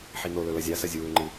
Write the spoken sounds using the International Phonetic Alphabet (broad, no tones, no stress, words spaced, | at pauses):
ħinolɵ lɐzʲasɐ zʲuːŋ͡ǃɨ